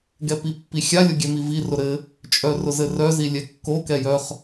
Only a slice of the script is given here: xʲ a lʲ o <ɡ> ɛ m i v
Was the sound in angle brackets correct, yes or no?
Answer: no